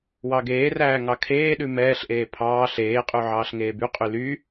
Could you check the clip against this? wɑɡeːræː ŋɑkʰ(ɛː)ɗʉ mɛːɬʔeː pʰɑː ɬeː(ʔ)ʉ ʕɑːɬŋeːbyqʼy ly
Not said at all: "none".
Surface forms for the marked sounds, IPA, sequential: eː, qʼ

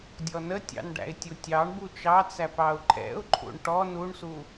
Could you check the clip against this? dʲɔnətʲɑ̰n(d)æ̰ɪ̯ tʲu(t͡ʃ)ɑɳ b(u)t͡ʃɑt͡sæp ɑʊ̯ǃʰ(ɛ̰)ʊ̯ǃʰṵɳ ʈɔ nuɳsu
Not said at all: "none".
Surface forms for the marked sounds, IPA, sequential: ɖ, tʲ, u, ɛ̰

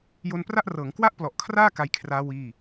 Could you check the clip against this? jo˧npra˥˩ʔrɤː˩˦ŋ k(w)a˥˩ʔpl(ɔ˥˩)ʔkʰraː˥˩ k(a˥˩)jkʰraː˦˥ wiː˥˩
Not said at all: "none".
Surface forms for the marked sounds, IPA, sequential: w, ɔ˨˩, a˧

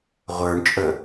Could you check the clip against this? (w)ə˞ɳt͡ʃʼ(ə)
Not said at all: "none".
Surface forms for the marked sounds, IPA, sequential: ʁʷ, ə

